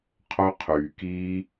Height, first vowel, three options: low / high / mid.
mid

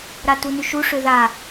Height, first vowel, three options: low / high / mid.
low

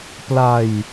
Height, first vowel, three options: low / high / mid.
low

